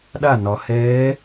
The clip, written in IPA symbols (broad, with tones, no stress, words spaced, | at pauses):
ɗa˥˩nɒ˩˧ hɛː˧˥